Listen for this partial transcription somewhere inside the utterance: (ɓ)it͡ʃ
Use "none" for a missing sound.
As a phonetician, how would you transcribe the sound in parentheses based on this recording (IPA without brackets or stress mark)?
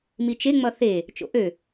m